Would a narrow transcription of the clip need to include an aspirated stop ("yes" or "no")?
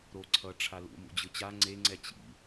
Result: yes